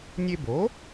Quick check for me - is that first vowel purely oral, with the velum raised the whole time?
yes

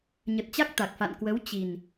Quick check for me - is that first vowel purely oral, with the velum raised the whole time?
yes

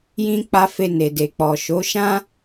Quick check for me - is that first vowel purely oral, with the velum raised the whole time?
no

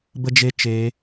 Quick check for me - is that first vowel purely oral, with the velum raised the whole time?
yes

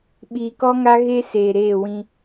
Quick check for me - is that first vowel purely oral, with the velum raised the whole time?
yes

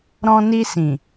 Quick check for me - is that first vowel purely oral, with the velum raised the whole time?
no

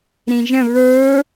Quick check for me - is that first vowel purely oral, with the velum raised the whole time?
no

